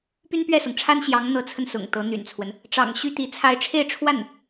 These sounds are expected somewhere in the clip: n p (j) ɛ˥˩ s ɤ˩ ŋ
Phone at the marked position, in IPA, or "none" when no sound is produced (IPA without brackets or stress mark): ɥ